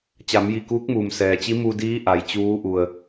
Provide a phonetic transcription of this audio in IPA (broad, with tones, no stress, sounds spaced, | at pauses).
t͡ɕ a˩˧ m j i˧˩ k uː˧˥ k̚ m uː˩ m s ɛː˩ t͡ɕ i˧˥ m uː˧ d iː˧˥ ʔ a˩ j t͡ɕ uː˧˥ ʔ u˩ ə̯